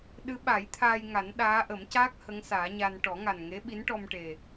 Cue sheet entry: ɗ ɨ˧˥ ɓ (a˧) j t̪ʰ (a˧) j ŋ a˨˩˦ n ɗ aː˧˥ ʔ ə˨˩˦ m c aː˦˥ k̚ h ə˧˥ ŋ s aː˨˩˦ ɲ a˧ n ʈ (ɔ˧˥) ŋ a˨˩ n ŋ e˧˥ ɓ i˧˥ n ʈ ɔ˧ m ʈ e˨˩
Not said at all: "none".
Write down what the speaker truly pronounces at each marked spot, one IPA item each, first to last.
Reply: a˨˩˦, aː˧, ɔ˨˩˦

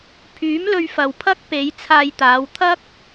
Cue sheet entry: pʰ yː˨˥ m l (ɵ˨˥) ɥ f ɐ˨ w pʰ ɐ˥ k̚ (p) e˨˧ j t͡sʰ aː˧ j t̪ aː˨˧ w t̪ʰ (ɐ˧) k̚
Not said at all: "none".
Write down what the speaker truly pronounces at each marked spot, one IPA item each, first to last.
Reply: ɵ˧, p, ɐ˥

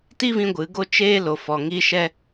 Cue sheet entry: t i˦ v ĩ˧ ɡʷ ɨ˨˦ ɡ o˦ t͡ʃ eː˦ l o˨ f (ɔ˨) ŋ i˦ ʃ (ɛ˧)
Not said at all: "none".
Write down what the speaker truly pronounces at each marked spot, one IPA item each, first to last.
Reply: ɔ˨, ɛ˦

